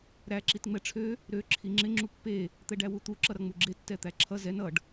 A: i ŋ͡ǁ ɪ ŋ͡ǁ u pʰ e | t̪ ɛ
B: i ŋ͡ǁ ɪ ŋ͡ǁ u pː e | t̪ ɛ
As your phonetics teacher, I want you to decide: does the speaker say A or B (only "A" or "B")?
B